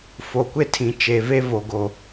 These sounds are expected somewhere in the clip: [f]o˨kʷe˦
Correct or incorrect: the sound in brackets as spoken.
correct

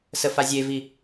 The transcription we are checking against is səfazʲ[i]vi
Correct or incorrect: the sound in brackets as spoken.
incorrect: e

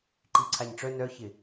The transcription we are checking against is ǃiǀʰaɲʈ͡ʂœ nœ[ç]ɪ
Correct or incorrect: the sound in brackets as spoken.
correct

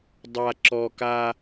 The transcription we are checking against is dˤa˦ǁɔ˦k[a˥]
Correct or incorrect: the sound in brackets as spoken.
correct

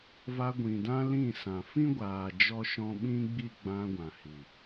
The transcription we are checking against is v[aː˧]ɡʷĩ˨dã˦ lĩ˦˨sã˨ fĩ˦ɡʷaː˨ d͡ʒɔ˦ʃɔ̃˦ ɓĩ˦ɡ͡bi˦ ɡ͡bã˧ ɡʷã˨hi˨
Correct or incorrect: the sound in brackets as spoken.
incorrect: a˧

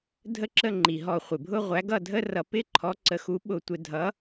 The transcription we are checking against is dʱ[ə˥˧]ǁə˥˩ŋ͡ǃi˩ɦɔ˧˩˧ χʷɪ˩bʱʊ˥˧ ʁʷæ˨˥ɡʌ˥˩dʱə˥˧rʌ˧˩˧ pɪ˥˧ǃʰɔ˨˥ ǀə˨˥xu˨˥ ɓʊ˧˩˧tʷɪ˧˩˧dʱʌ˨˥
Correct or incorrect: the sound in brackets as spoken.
correct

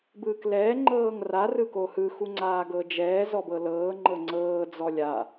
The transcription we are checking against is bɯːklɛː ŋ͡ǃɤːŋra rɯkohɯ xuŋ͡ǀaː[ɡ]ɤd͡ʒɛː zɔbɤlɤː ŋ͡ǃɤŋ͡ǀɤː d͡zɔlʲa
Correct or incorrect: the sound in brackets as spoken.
correct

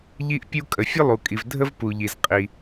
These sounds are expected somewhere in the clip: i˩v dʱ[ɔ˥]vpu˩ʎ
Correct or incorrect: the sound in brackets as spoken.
incorrect: ə˥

